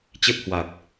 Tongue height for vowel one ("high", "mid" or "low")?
mid